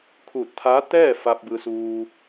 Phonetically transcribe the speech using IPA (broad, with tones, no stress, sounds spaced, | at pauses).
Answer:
kʰ uː˧˩ t̚ t̪ʰ aː˧˥ t̪ ɛː˥˨ f a˧ p̚ b ɯː˧ s uː˧